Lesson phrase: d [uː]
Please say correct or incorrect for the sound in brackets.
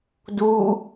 correct